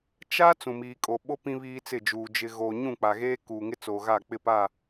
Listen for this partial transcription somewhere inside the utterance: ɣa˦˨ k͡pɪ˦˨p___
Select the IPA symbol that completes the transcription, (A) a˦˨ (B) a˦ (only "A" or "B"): A